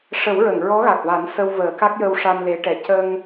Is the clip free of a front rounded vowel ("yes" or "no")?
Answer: yes